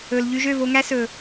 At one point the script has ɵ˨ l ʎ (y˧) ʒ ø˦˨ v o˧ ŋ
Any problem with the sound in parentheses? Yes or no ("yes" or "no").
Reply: no